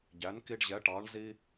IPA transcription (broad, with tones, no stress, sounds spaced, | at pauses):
ɟ æ˩˥ n k i˧ ɖ ʑ ɛ˩˥ ʈ ɑ˩˥ ɳ z i˧